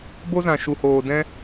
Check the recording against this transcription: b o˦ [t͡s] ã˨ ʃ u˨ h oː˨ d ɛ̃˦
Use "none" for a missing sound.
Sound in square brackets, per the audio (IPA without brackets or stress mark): z